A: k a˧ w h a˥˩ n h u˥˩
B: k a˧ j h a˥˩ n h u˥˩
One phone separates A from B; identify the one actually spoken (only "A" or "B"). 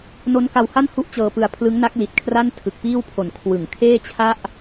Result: A